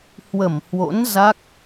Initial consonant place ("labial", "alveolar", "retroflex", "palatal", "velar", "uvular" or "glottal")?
glottal